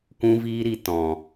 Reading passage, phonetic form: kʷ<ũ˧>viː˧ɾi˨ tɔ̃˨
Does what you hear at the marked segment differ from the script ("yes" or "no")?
no